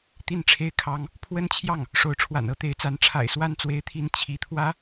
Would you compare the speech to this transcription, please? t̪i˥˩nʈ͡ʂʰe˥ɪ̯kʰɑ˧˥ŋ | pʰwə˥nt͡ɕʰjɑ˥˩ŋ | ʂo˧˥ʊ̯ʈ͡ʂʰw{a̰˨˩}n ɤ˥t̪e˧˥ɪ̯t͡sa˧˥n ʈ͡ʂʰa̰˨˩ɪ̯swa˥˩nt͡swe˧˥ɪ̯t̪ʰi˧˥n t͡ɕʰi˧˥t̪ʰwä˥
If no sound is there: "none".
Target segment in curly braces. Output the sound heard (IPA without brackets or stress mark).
a̰˨˩